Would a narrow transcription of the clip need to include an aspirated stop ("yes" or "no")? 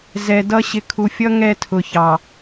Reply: yes